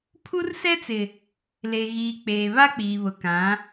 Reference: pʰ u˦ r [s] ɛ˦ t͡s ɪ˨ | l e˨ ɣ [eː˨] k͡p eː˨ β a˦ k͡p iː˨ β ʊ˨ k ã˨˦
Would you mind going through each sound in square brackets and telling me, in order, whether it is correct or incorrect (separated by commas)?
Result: correct, incorrect